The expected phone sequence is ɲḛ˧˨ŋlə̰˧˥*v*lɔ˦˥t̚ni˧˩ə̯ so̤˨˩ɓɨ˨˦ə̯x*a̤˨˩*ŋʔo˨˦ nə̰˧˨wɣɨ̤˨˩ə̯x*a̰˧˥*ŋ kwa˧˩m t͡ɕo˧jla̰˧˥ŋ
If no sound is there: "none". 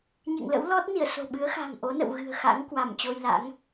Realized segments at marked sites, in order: w, a̤˨˩, a̰˧˥

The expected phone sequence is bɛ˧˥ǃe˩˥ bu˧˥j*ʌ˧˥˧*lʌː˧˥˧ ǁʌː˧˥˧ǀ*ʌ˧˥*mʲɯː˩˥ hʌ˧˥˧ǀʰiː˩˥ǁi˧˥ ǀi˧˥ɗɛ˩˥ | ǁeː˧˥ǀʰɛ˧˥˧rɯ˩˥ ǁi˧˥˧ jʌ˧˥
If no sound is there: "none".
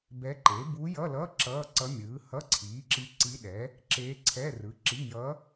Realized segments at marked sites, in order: ʌ˧˥˧, ʌ˧˥

